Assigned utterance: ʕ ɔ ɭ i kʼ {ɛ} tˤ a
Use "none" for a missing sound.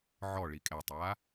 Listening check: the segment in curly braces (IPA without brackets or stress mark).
ɛ